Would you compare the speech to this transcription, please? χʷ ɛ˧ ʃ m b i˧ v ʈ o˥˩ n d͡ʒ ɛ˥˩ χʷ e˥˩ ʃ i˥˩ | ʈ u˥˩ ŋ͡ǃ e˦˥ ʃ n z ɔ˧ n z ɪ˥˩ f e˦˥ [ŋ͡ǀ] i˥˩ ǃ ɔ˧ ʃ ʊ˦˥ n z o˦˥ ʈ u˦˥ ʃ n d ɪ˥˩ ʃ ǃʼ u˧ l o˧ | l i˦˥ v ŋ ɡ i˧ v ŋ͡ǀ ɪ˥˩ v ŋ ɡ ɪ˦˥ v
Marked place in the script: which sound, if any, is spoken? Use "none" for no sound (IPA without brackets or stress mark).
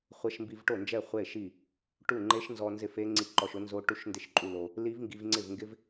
ŋ͡ǀ